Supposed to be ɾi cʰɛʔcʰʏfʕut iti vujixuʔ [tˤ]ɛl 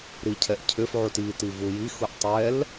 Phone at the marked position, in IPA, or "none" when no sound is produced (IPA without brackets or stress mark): tˤ